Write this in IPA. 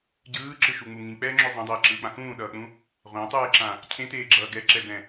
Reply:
ɟɯːǁɯʃuŋ͡mu ŋĩk͡pɛːŋ͡ǁo zˤãdˤeːǁɯːk͡pã xũːɗʌːk͡pũ | ʁʷãtˤɯːǁã | cʰẽteːɡ͡ǁʌː ɡɛǁɛbɛ̃

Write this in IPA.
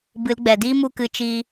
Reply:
bɨ˨˦lɡ͡bɛ˨ diː˦mu˧kɨ˨˦ t͡ʃiː˧

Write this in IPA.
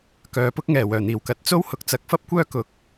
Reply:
kœː˨pʊ˥k̚ ŋɛː˨˩ wœː˨˩n̪iː˨˩wkɐ˨˥t̚t͡so˥w hʊ˨˥k̚t͡sɐ˨˥k̚ fɐ˥p̚kʷœː˥kʊ˨˥k̚

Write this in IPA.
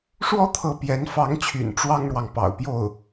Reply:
ʂwɔ˥t̪ʰɤ˧˥ pjɛ˧˥nfɑ˧˥ŋt͡ɕʰy̰˨˩n ʈ͡ʂwɑ˥ŋɻwɑ˨ŋ pɑ̰˨˩ʊ̯pjo˥˩ʊ̯

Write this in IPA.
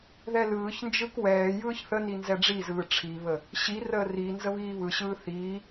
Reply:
ðɛlɯːçnd͡ʒɯk wɛː jɯːçθəni nzɛɖ͡ʐizɯː ʈ͡ʂʰiβə | ɕirəː ri nzəβiːβɯɕɯː θiː

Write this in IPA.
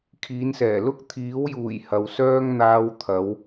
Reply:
kʰiː˨˧nsɛː˨˩lʊ˥k̚ t̪ʰiː˨˥wjuː˨˩j hɐ˨˧wsœː˥ŋ n̪aː˧wt̪ʰɐ˨˧w

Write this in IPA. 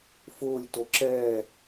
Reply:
fʊːlʲ toǁɛː

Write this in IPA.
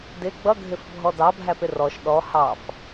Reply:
dɪ ɡ͡bʌɡʱɪfbʱɔ dɑbʱæpɪ rɔʃ ɗɔ hɑf

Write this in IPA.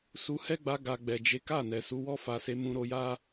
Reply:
su˧hɛ˦ɡ͡ba˧ɡa˨ ɡ͡bɛ˨d͡ʒe˨˦ka˦˨nɛ˨ su˨˦wɔ˦fa˧se˧ mũ˧ɾo˧ja˦

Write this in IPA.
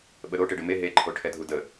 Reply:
ɓəɾo ʈeɖəme ɦe ǃʰoʈʰɛdʱudə

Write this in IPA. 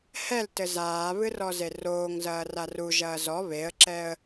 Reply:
hɛltɘ zaːβɨ rɔzeroːŋzɐː raruʒɐː zɔ βeə̯ǁɛə̯

